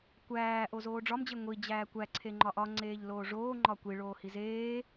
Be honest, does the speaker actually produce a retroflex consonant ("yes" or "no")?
yes